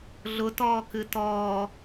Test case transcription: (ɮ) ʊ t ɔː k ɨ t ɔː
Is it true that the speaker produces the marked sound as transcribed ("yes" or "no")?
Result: yes